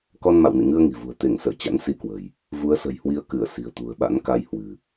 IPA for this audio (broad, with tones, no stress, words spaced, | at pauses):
kɔ˧nma̰˧˨wnḭ˧˨ ŋɨ˧ə̯ŋi̤˨˩vṳ˨˩ə̯ t̪e˧˩ŋsə̰ː˧˨ t͡ɕa̰˧˥n si˧kwə̤˨˩j | vu˨˦ə̯sə̤˨˩jhwi˨˦ə̯ kɨ˧˩ə̯ si̤˨˩ə̯t̪ṳ˨˩ə̯ɓa̰˧˥nka˧j hwɨ̤˨˩